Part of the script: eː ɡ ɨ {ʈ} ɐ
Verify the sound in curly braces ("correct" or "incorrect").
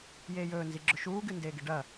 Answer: incorrect